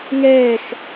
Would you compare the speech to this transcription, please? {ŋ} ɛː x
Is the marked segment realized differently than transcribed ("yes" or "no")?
no